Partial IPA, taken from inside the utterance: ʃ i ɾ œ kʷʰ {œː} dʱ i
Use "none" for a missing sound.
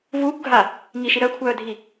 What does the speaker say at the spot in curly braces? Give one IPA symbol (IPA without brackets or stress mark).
œː